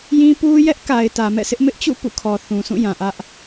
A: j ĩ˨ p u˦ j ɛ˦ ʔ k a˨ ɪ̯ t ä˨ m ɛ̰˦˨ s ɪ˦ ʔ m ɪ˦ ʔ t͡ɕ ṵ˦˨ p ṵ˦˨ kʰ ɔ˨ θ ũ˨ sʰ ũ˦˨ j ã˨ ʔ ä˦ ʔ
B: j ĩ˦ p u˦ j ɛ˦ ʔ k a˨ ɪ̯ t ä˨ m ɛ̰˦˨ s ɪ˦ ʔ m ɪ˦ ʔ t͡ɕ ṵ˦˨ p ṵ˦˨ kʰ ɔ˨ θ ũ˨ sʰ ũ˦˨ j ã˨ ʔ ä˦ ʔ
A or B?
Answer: B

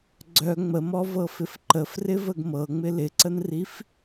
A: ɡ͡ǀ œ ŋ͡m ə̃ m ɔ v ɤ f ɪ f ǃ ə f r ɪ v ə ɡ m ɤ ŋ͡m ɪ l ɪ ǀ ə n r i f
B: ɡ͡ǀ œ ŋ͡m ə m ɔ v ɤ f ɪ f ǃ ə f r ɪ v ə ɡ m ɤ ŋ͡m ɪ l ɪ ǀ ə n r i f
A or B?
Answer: B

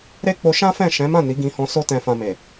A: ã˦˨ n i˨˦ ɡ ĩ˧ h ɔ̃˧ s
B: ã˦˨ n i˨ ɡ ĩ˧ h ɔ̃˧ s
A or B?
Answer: A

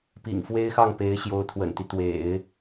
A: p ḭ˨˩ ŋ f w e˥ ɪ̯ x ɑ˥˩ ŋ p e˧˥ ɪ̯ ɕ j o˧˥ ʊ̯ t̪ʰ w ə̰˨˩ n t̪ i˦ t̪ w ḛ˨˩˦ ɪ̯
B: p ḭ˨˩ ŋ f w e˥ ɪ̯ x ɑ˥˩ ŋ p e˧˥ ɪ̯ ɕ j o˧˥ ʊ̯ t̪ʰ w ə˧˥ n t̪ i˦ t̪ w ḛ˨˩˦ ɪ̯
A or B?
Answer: A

